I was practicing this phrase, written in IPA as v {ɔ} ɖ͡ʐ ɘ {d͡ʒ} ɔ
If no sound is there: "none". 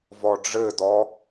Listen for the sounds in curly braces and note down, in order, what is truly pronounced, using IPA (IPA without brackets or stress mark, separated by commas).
ɔ, d